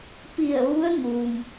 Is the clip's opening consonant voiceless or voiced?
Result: voiceless